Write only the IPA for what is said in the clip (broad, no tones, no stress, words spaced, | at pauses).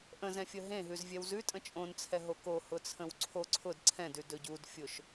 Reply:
ʔə̃zɛ̃fʲə ɦẽɦʉzvʲɛw zʉ tʼə̃t͡ʃʼõnt͡sʰɛ ɦoko hʊt͡sʰə̃wǀʰo ǀʰʊd ǀʰɛ̃dʉ dɵɟudfʲʊʃ